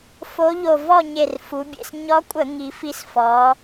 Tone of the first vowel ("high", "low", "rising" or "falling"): rising